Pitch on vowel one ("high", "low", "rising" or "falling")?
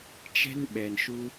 high